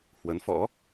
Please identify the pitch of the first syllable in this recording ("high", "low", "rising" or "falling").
rising